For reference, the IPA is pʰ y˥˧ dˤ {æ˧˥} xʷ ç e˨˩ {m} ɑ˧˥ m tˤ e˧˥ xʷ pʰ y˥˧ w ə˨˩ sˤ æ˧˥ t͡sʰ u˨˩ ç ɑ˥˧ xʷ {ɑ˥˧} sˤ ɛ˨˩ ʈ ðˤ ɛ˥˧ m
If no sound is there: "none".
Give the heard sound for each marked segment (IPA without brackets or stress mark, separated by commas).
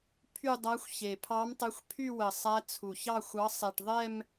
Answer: æ˧˥, pʰ, ɑ˧˥